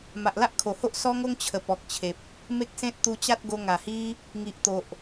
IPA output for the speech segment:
m a˨ ʔ l a˦ ʔ kʰ o˨˩ h o˦ ʔ s ɔ˦ ŋ o˦ ŋ t͡ɕʰ ə˨˩ p ɔ˨ k̚ t͡ɕʰ e˨ p̚ | m e˦ k̚ s ẽ˦ t̚ t̪ u˧ t͡ɕ a˦ t̚ ɡ o˧ ŋ a˨˩ h i˦ | ŋ i˨ ʔ t̪ o˨ ʔ

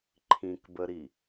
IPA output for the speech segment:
ǃʰ ĩ k b ə ɾ i

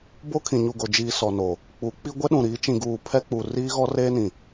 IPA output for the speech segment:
b o˦ kʰ ĩ˨ ɲ u˨ ɡ o˨ d͡ʒ iː˨ s ɔ˨ n o˨ | k͡p u˨˦ k͡p i˦ ɡʷ ɛ˦ ɗ ũ˨ ɾ iː˨˦ t͡ʃ ĩ˨ ɡ uː˨ pʰ ɛ˦ k͡p u˨ r iː˦ ɣ ɔ˦ r eː˦ n ĩ˨

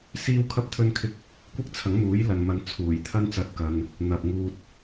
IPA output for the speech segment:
s iː˥ w kʰ ɐ˥ p̚ t̪ʰ ɵ˥ n kʰ ɪ˥ k̚ | kʷ ɪ˥ k̚ t͡sʰ ɐ˨˥ ŋ m uː˨˥ j l ɐ˨ n m ɐ˨˧ n t͡sʰ uː˨˩ j t̪ʰ ɐ˥ n t͡s ɐ˧ t̚ k ɐ˧ n | n̪ ɐ˨ p̚ ŋ uː˧ t̚

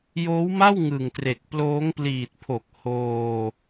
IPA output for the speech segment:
j oː˦˥ w m a˥˩ w ŋ ɯ˨˩ ŋ t r e˨˩ k̚ p l oː˦˥ ŋ p l iː˨˩ t̚ pʰ o˨˩ k̚ h oː˧

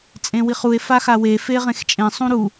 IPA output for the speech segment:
t͡sʼ ẽ w i χ u e̯ f a x a w e f e ʁ ẽ x t͡ʃʼ ẽ sˤ ũ ɾ u

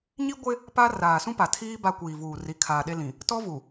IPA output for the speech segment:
ɲ i˦ ɡʷ ɪ˦ | p a˦ r aː˨ s ũ˦ p a˨ tʰ iː˦ b a˦ kʷ iː˨ v uː˨ r i˨˦ kʰ aː˨ ɗ e˦ l ĩ˨ | t ɔ˦ v u˨

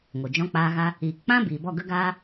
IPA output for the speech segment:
ŋ o˨ d͡ʒ ɔ̃˧ k͡p aː˧ ɣ a˧ | iː˨ k k͡p ã˦ b iː˨ b ɔ˦˨ ɡ ə˦ ɡ aː˦

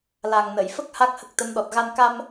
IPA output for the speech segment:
l a˨˩ ŋ n ə˨˩˨ j f ə˦˥ k̚ h a˦˥ k̚ h ə˦˥ k̚ t̪ ə˧˥ m ɗ ɔ˨˩ t̚ ɣ a˧ n k a˧ m

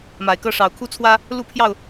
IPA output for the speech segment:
m a˨˩ ɪ̯ k ɤ˦ ʂ ɑ˨˩ ʊ̯ kʰ u˦ t͡sʰ w ä˦ | l u˥˨ pʰ j ɑ˥˨ ʊ̯

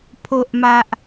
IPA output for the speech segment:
pʰ o˨ ʔ m a˨ ʔ

